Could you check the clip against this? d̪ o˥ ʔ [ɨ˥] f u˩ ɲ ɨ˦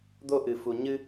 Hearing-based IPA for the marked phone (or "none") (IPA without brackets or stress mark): ɨ˩